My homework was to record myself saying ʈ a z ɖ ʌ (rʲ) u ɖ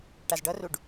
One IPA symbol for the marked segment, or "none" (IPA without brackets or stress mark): r